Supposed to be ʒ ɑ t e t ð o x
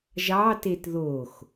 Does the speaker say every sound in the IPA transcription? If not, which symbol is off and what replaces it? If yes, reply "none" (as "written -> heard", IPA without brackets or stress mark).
none